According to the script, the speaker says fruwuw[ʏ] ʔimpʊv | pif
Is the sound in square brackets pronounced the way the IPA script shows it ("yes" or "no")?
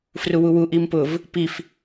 no